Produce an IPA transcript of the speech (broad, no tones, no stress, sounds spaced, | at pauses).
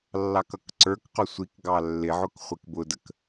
lː ɑ k ʌ k ǀ ə˞ k q ʊ sʷ i k ɡ ɑ lː ɪ ʕ ʊ k χʷ ɪ k b ʊ d ə k